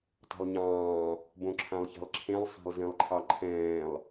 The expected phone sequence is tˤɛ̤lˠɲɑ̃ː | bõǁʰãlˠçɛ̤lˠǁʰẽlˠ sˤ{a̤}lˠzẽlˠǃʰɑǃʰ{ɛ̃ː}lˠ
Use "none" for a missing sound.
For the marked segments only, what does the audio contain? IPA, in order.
a̤, ɛ̃ː

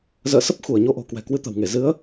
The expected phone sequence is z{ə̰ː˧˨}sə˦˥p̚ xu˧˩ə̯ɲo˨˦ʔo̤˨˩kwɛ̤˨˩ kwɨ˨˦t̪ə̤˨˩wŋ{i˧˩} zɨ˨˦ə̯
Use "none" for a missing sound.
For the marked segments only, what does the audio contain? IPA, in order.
ə̰ː˧˨, e˧˩

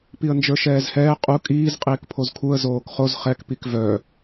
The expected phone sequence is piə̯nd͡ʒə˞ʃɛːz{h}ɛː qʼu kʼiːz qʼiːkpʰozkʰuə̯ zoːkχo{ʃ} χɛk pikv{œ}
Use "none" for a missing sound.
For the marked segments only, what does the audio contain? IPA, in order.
h, z, œ

